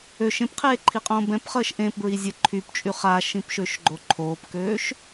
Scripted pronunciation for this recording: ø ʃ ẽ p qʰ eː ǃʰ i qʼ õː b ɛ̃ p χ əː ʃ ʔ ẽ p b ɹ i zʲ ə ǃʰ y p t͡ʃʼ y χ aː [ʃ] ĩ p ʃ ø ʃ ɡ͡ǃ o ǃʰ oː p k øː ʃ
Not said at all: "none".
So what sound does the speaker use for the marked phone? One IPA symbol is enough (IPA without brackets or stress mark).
ʃ